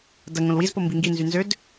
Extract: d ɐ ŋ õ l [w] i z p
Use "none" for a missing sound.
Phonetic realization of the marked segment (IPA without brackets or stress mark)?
w